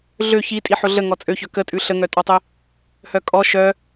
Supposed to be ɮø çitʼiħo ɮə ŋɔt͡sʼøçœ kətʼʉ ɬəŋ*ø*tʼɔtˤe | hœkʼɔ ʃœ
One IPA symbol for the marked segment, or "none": œ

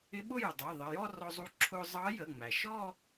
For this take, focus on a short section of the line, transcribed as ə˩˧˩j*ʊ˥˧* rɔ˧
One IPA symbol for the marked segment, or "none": ɔ˥˧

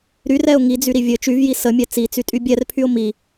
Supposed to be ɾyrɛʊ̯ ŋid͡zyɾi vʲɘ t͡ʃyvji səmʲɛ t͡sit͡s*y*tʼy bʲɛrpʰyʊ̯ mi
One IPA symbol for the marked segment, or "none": y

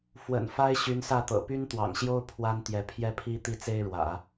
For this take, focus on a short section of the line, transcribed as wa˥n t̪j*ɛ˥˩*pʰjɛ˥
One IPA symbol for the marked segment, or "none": ɛ˧˥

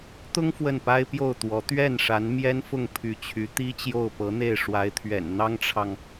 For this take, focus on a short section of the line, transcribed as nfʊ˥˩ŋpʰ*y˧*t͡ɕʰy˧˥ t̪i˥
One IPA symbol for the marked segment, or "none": y˧˥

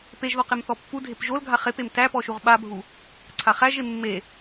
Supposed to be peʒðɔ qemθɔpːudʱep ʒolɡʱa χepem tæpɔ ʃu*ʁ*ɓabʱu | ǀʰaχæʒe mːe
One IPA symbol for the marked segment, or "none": ʁ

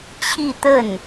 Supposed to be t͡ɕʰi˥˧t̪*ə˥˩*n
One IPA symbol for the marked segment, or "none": ə˥˩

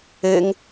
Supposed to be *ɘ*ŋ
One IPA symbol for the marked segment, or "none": ɘ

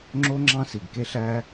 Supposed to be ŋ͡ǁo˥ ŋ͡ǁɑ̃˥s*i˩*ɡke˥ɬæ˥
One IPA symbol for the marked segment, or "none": i˩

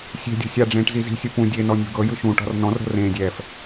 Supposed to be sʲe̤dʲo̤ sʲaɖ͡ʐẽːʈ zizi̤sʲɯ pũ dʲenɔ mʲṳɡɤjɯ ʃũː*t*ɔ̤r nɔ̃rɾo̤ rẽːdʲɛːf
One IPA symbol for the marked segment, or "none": ʈ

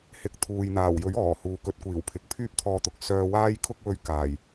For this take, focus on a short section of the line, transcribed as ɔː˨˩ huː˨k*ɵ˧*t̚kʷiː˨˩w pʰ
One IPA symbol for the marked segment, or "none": ɵ˧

